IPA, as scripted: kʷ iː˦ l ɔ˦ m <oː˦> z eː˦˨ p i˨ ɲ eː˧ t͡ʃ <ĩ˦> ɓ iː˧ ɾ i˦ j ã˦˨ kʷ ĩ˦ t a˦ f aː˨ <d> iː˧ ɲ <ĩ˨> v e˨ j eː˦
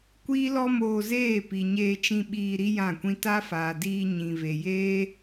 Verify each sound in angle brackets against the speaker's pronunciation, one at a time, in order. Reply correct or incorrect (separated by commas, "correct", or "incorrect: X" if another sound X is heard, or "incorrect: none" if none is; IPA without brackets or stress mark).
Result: incorrect: oː˧, incorrect: ĩ˧, correct, correct